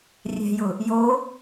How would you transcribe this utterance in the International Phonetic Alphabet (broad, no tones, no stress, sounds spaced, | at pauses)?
rʲ ɛ̤ j ʊ | j o